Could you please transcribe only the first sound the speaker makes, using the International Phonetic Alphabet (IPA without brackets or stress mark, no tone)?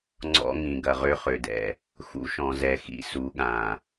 ŋ͡ǀ